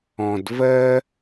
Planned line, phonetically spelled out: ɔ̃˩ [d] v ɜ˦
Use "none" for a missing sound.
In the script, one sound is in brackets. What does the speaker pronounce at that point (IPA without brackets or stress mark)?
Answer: d